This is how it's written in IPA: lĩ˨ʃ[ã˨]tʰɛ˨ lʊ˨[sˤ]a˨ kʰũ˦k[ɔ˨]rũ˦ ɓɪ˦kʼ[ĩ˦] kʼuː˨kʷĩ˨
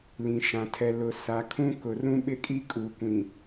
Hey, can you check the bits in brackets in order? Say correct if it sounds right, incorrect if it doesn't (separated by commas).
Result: correct, incorrect, incorrect, incorrect